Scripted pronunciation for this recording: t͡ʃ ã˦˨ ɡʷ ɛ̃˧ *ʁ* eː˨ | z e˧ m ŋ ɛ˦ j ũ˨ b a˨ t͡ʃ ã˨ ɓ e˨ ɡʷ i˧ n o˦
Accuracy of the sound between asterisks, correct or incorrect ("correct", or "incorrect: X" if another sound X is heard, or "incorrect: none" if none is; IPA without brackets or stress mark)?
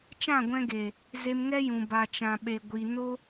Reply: incorrect: ɡ